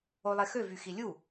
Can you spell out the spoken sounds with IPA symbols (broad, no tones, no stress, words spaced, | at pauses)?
olˠexø vyxilʲu